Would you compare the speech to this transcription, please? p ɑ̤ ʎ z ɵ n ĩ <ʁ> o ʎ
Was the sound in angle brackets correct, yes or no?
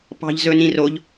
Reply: no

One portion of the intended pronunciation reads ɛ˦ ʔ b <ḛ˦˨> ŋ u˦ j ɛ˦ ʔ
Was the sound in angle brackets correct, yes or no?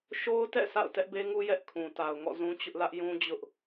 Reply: no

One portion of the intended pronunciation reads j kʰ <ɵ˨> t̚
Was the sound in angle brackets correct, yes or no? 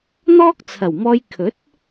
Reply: no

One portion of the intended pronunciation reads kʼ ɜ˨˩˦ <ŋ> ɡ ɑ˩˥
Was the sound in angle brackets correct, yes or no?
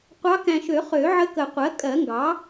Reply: yes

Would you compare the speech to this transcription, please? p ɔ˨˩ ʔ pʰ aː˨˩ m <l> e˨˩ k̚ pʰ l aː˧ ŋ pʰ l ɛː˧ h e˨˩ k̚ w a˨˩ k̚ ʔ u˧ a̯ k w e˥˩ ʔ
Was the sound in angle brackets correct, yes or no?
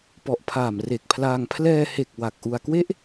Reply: no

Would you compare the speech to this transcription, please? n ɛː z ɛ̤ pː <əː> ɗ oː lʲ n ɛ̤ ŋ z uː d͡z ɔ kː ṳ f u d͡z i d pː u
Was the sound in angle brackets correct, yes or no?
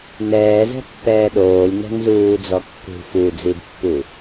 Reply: no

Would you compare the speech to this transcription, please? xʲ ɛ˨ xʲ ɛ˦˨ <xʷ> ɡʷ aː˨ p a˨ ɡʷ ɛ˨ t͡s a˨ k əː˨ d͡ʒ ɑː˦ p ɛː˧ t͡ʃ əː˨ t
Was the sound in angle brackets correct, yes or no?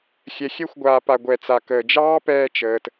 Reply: yes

